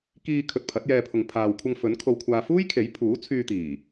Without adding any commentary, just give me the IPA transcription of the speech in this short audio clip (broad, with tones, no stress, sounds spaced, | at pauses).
k iː˧ kʰ ɵ˨ t̚ pʰ ɐ˨˥ t̚ j ɛː˧ pʰ ʊ˨ ŋ pʰ aː˨ w kʷʰ ɐ˧ ŋ f ɵ˨˥ n kʰ o˧ w kʷʰ aː˧ f uː˥ j kʰ e˨˥ j pʰ uː˨˥ t͡sʰ yː˧ t̪ iː˨˩